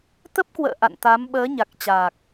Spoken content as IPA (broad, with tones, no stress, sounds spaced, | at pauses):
t̪ ə˦˥ p̚ k w ə̰ː˧˨ ʔ a̰˧˨ n t̪ a˨˦ m ɓ əː˨˦ ɲ a˨˩ k̚ t͡ɕ aː˨˩ k̚